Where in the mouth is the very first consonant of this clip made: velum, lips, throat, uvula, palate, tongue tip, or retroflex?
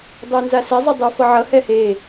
tongue tip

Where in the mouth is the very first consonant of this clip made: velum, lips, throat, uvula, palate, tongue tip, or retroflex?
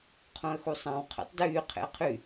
uvula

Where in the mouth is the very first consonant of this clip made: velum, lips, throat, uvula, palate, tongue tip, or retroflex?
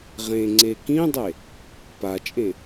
uvula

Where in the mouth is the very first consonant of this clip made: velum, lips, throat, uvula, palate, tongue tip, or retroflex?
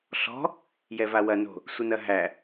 tongue tip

